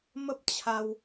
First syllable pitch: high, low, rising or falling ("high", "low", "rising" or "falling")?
high